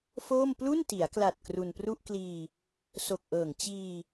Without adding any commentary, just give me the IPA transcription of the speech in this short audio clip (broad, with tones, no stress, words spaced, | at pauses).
foː˥˩m plu˥˩nti˩˦a̯kla˨˩t̚ kru˧npru˥˩ʔkliː˧ | so˨˩k̚ʔɤː˨˩ŋ t͡ɕiː˧